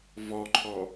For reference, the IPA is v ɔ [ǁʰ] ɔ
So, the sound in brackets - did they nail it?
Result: no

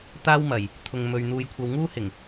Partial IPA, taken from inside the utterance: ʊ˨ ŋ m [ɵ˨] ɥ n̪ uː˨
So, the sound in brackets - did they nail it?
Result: yes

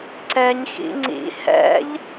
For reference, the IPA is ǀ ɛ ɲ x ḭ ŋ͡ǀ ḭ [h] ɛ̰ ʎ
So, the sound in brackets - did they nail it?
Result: yes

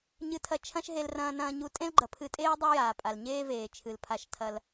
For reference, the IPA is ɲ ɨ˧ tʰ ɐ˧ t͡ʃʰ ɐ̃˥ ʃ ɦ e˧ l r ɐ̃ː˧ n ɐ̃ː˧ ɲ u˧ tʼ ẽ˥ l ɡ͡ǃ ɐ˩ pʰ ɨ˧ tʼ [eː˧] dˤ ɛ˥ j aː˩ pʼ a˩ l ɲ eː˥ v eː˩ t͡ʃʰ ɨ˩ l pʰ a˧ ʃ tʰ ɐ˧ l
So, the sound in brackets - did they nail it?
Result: no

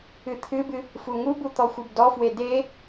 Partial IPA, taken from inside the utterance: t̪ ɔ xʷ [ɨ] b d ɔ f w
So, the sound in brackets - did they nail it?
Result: yes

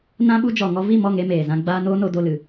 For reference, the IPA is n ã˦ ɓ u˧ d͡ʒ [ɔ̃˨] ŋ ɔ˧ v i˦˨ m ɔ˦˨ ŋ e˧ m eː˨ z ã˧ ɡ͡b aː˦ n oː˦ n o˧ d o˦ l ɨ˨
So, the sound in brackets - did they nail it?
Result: no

